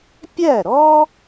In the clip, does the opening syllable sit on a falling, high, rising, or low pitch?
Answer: falling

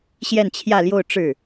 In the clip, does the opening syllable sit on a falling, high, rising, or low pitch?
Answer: falling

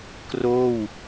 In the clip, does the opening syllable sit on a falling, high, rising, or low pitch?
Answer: falling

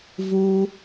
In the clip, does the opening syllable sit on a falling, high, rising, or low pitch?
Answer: low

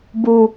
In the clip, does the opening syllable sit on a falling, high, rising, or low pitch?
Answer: low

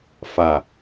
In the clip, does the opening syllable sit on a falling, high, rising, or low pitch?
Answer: low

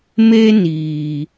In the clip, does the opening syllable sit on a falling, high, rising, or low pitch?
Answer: high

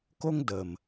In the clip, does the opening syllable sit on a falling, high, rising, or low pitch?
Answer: high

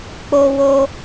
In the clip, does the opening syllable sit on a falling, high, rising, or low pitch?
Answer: high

